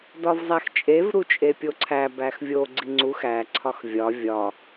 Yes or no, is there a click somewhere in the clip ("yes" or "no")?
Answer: yes